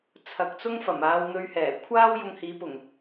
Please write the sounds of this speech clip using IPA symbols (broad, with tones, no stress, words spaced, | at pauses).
t͡sʰɐ˨˥k̚t͡sʊ˥ŋfɐ˨˩maː˧w n̪ɵ˧ɥhɛː˨˩ kʷʰaː˥w jʊ˧ŋhiː˨˥ pʊ˨˩ŋ